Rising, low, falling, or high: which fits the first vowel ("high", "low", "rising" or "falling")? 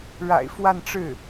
low